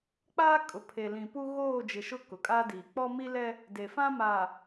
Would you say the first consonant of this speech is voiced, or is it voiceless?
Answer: voiceless